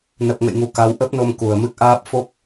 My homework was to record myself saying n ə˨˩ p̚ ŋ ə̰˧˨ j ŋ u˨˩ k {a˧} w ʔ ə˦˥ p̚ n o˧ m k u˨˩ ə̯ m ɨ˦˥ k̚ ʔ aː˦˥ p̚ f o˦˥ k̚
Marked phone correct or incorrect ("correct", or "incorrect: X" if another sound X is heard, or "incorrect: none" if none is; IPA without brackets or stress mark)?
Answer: incorrect: a˨˦